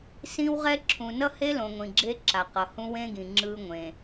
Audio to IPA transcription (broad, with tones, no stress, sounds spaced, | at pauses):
s ĩ˦ w ʁ ɛ˦ ǁʰ ũ˨ n ʌ˦ h e˦ l õ˨ ŋʷ ĩ˨ ɡ͡ǁ e˦ ǁ a˨ q ʌ˨ h ũ˦ w ẽ˦ ɡ ĩ˨ ŋ͡ǁ ɯ˦ ŋʷ ẽ˨